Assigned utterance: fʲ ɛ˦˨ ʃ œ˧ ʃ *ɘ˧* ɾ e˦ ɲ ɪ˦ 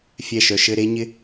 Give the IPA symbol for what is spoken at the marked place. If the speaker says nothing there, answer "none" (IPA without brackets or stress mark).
ɘ˧